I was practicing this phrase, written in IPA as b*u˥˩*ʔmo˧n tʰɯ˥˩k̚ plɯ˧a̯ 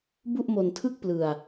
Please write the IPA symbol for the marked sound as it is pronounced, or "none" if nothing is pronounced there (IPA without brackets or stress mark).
u˥˩